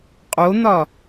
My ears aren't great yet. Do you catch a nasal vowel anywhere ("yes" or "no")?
no